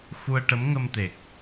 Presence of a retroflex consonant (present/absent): present